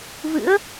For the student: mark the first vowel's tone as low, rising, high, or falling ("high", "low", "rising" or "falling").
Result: rising